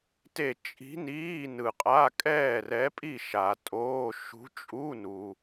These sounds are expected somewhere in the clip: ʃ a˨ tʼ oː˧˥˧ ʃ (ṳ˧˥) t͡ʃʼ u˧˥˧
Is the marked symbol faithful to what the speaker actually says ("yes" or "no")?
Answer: yes